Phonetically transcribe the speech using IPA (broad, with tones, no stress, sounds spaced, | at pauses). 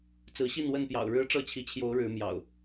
t͡s ɹ̩˨˦ ɕ i˥˨ n w ə˥˨ n p j ɑ̰˨˩ ʊ̯ ɻ ɻ̩˦ ʈ͡ʂ ɤ˥˨ t͡ɕʰ i˨˦ t͡ɕʰ j o˨˦ ʊ̯ ɻ ɻ̩˨˦ m j ɑ̰˨˩ ʊ̯